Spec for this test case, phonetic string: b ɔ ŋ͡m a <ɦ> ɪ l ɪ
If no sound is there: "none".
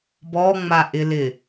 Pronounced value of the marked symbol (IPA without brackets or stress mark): ʔ